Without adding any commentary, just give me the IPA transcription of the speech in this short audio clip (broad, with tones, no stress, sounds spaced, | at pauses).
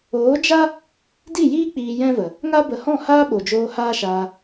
oː˨˦ d͡ʒ a˦ | d i˦˨ j iː˦ k͡p iː˧ j ɛ̃˦ v ə˨ | ŋ a˦ b ə˨ h ɔ̃˦˨ h aː˦ ɓ o˨ d͡ʒ oː˧ h aː˦ ʃ aː˧